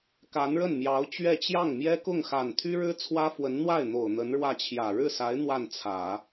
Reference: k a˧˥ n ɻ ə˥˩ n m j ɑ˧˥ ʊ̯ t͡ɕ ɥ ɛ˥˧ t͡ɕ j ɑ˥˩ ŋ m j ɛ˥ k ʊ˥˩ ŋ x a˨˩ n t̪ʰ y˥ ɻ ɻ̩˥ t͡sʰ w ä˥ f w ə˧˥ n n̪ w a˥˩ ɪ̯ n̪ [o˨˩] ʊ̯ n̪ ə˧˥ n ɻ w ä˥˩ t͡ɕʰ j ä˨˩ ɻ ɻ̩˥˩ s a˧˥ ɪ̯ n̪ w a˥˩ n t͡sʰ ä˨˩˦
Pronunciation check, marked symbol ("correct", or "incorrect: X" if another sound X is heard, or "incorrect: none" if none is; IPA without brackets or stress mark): correct